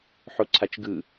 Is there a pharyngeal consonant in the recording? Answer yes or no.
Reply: yes